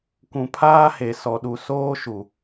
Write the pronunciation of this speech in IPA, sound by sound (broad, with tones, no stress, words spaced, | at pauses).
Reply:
kʷũ˨pʰaː˦he˨ sɔ˨ɗu˨ soː˦ʃu˨